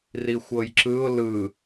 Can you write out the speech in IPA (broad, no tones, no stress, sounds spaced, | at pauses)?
r i xʷ ɤ j ǁ ɯ ʊ̯ l ɯ